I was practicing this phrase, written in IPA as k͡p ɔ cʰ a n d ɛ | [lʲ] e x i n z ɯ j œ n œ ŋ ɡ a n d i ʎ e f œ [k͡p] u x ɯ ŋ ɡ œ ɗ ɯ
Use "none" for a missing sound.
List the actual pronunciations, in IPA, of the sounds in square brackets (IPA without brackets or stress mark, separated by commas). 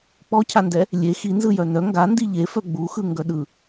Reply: lʲ, ɡ͡b